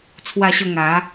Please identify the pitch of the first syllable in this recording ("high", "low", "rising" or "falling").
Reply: falling